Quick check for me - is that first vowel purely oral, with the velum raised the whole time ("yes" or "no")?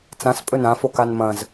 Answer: no